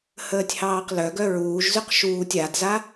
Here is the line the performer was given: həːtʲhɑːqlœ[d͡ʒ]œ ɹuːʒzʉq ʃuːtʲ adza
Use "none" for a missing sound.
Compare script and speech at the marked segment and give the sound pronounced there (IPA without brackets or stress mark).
ɡ